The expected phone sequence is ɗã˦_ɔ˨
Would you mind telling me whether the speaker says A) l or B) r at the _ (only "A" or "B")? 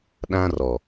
B